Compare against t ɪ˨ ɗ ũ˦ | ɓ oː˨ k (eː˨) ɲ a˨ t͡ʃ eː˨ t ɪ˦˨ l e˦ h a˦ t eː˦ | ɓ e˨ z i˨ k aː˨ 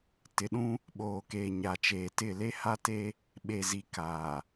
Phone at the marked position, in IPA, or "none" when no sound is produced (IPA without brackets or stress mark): eː˨